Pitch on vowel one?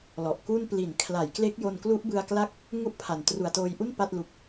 low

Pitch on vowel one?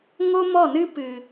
high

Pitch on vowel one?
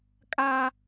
high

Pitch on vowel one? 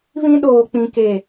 high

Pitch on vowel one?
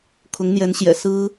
rising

